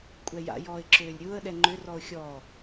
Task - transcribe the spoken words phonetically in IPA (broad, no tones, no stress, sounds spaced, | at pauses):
kʷʼ ɛ j a̰ j ɔː ɪ̯ ǁ øː lʲ ɾʲ ʊː ə̯ ɗ ɛ ŋ͡ǃ ʏ r ɔ ʊ̯ xʲ ɔː